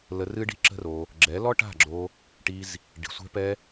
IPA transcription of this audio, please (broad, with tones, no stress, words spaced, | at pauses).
lə˧ rɨ˦ɖi̤˦ǁə̤˦ro˧ | ɡ͡ǁɛ˨˦lɔ˦ ʈa̤˦˨ɡ͡ǁo˧ | ʈi˦z | ɖi̤˨sʷɛ̤˧pɛ˧